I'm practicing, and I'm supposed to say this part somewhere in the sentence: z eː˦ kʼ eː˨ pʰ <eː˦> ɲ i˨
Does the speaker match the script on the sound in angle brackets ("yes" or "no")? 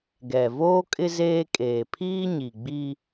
no